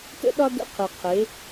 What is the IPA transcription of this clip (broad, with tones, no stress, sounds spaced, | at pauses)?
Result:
t ə̰˦ ɗ ɒ˦ d ə̰˦˨ qʰ ɯ˨ qʰ e˨˦